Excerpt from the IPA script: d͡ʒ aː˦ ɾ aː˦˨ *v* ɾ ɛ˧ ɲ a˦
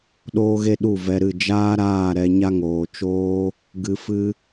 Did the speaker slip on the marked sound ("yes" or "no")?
yes